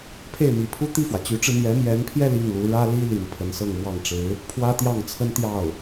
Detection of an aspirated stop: present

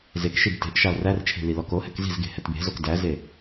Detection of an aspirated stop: present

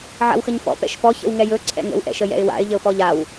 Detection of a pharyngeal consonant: present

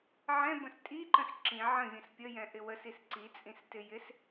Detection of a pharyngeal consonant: present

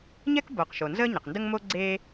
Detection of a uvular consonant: present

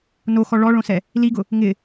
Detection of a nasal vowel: present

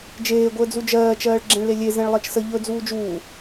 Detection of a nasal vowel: present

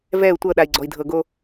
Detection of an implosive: present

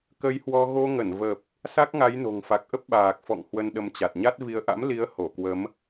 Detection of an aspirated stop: absent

